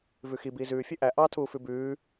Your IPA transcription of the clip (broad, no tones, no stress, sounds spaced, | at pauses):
v ʉ x i b iː z ʉː fʲ ɵ ʔ æ ʔ ɑ tʰ uː f ʉ b ʉː